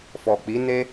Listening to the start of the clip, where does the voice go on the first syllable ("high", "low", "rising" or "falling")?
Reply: low